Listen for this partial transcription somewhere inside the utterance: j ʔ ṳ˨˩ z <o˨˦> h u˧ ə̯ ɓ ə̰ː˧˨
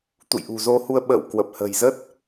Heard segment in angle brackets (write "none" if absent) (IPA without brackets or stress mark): o˧